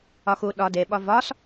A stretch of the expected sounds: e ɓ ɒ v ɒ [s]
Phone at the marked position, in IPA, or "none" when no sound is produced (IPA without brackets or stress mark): s